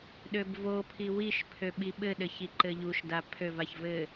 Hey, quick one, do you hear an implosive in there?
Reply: yes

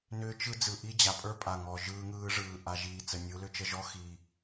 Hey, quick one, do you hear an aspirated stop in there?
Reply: no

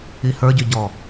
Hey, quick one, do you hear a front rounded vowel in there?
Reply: yes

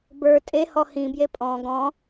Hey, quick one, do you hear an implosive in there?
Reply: no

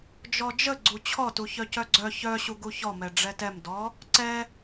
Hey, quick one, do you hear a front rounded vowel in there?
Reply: yes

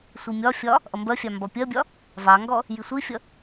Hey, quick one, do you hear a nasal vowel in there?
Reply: no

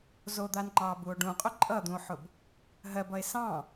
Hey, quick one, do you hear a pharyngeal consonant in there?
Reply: yes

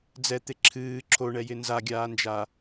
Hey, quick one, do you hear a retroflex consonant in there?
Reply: yes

